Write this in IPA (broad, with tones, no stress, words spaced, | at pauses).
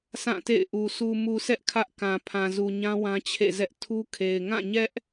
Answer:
sʰã˦˨tḛ˦˨ɪ̯ʔu˨ su˨mu˨sɛ˦ʔ kʰä˦ʔkã˨ pʰã˨zu˨ɲã˦ wã˦t͡ɕʰḛ˦˨zɛ˦ʔ tʰu˦kʰe˨ɪ̯ ŋã˦˨ɲɛ˦ʔ